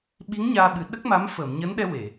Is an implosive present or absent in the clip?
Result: present